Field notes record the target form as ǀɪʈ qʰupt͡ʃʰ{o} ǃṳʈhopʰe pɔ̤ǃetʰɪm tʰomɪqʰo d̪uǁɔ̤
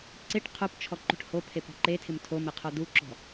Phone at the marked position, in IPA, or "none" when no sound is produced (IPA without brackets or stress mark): ɔ